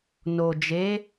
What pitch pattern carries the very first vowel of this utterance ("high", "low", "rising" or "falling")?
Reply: low